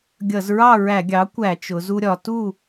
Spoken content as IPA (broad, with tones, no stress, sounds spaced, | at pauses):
ɡʲ ʌ˧˩˧ z ɹ ɑ˥˨ ɹ æ˧˩˧ ɡʲ ɑ˩˥ kʷ æ˧˩˧ t͡ʃ ʊ˩˧ z u˧ ɾʲ ɒ˩˧ t u˥˨